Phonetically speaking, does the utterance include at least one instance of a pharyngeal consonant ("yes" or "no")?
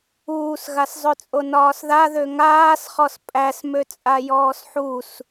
yes